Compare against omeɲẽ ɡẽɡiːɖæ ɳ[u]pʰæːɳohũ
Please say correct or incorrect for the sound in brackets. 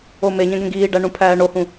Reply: incorrect